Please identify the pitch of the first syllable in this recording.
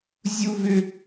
high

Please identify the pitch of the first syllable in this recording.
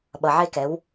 low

